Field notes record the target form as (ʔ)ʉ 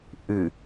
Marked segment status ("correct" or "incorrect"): correct